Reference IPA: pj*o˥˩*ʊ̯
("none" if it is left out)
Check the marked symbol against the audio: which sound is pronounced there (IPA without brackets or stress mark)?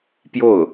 o˥˩